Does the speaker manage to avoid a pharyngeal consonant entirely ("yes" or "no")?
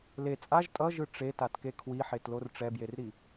no